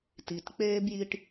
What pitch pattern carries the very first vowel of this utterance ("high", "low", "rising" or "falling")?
low